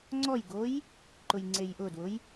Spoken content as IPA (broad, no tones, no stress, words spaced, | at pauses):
ŋ͡ǀɔjɡoj | ǃʊjŋ͡ǀejʔʊdwʊj